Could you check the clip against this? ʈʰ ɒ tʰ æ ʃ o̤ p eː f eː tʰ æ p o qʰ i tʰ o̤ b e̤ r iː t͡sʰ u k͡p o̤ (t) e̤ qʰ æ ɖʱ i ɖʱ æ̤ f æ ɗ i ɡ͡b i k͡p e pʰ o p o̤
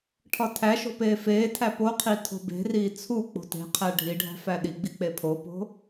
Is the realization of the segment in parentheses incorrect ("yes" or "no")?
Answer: no